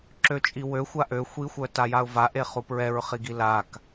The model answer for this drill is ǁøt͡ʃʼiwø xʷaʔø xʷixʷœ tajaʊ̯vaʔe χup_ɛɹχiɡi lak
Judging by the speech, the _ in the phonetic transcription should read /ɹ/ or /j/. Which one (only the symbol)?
ɹ